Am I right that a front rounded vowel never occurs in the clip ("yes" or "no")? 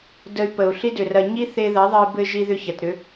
no